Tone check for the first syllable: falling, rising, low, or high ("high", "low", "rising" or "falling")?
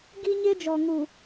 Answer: high